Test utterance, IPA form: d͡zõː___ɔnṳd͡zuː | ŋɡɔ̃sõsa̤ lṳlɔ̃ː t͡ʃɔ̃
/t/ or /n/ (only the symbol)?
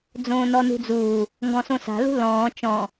n